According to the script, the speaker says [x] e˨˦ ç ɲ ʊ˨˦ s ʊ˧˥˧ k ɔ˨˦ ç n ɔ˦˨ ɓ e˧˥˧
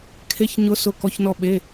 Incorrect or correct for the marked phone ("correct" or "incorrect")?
incorrect